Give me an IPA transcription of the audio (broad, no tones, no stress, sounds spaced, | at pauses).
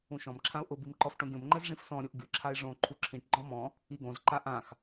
ũ ʃ ɔ̃ m ǁʰ ã ʊ̯ ʔ ʊ b i m ǃ ɔ f ʈ õ ɡʲ õ m ŋ͡ǃ ɛ z ʐ ĩ f s ɔ̃ ɾʲ o ʔ ɡʲ ʊ ǁʰ a ɪ̯ ʐ õ ǃʰ u ǁʰ ĩ ʈ ɡ͡ǃ ɔ̃ m ɔ̃ | i ɡ õ z ǃ a ʔ ã x